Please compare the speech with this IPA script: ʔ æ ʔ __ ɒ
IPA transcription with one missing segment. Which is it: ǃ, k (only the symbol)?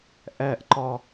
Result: ǃ